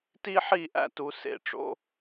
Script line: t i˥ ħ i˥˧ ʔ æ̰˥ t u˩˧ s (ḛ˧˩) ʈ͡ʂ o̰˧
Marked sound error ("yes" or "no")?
no